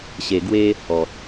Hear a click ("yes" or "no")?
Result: no